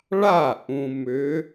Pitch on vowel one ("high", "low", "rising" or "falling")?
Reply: falling